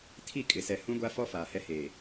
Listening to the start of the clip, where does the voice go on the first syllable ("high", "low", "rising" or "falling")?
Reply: falling